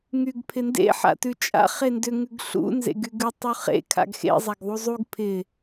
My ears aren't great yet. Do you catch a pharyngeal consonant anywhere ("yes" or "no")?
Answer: yes